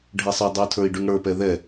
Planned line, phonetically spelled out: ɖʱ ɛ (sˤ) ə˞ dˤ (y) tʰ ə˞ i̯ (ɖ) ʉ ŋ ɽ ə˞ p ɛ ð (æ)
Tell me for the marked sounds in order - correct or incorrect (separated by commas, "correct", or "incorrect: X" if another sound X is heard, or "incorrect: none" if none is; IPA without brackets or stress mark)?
correct, correct, correct, incorrect: ɛ